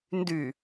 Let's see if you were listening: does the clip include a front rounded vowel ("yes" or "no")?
yes